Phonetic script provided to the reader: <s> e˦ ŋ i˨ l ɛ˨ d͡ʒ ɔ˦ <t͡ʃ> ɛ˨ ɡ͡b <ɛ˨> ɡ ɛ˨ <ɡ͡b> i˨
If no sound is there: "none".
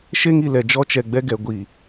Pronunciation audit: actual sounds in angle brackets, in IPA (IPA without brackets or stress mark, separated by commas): ʃ, t͡ʃ, ɛ˦, ɡʷ